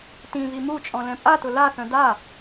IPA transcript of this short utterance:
tĩβi mut͡ʃʼɔ̃lɛ̃ pʼatʊ laθœ̃ da

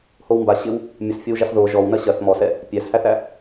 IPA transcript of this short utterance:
howmba ɕɪw | mʲəsfʲɔwʒas ðo ʒɔw nɐɕɐθ mɔsɛ | pʲæshæθæ

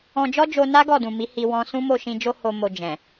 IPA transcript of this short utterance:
ɔ̃˧ d͡ʒɔ˦d͡ʒo˧na˦ ɡɔ˦˨dũ˨mi˨˦ hi˧ wɔ̃˧sũ˦ mo˦˨ʃĩ˧d͡ʒo˦ ho˧mo˧ d͡ʒɛ̃˨

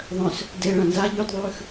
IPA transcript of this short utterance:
ðˤœ̃s | de ɭãnza ʎʉdðˤʉːx

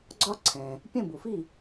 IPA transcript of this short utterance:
ɡ͡ǀɒ˥ǀʰɛ̃˩ | pʲə̃˥˩bu˩fi˥˩

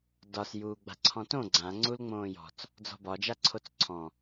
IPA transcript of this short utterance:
dɒs juːɡ͡ba̤ǀʰɔ̃tõ ɡ͡ǀã ŋ͡ǀulŋ͡mõːjɔ̤t͡s | d͡zɔ̤bɒ d͡ʒaǀʰot͡sǀʰɔ̃

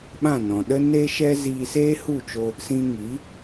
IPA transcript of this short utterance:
ɓã˦˨nɔ̃˨ɗə˦neː˦ ʃɛ˦ ziː˧seː˦hu˦˨t͡ʃo˧ | sĩ˧ŋi˨˦

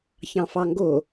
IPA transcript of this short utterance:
çɑ̃fɑŋɡo

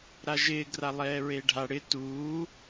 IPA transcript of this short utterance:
ɾaʒɪː ɡralˠɛːɹeːɖʱa ɽɪ tuː

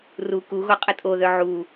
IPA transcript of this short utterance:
ru kuɣo qʼətʼoðœ ʕu

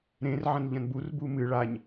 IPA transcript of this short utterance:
ɾẽr ʕɐ̃nʎɐ̃nbur bumɨ ɭaɲ

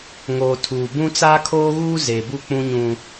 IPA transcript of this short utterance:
ŋoː˨tʰuː˨bũ˦ t͡saː˦kʰoː˦ɣuː˦ zeː˨bu˦˨k͡pũ˦ ɲũ˦

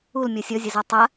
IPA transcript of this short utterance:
ul mʲɔsʲɔzʲɐza tˤa

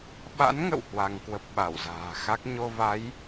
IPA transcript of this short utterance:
ɓa̰˧˥nŋə̰˧˨w hwa˧ŋkwə˦˥p̚ ɓa˧˩wza̤ː˨˩xa˦˥k̚ ɲo˧va˨˦j

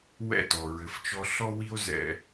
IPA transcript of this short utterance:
wɛ̰˦˨tɔ˨ ɹɘ˨ft͡ʃɔ˧ ɬɔ˦wi˦o̯zɛ̰˧

